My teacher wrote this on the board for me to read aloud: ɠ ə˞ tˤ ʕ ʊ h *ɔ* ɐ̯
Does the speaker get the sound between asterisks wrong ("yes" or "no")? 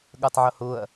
yes